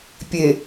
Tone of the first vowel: low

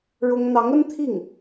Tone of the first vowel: high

